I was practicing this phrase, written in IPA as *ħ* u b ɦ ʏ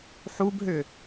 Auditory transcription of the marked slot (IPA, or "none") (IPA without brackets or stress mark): ħ